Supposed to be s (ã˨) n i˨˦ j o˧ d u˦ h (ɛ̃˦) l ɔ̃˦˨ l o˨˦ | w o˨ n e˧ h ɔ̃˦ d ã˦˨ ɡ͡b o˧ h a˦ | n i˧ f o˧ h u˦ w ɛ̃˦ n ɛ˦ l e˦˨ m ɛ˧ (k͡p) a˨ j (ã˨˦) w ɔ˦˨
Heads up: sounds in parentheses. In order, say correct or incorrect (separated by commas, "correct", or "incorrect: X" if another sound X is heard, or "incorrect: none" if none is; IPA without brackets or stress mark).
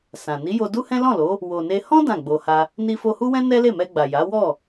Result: correct, correct, incorrect: ɡ͡b, incorrect: a˨˦